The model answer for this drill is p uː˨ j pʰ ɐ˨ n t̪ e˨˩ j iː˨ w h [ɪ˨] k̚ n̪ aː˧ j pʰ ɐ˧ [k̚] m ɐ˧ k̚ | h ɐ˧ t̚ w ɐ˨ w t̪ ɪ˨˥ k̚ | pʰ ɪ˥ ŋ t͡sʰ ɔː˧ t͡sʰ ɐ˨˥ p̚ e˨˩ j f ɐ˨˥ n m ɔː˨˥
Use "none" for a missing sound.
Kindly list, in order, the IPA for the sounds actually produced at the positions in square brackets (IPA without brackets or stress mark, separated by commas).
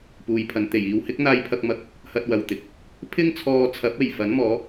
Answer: ɪ˨˥, k̚